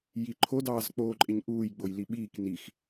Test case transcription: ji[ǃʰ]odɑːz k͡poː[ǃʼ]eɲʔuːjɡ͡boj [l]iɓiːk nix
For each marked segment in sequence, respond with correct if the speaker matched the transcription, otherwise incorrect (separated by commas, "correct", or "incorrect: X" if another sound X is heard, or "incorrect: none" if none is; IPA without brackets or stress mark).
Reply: correct, correct, correct